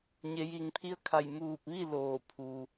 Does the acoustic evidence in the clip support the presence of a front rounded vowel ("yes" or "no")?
no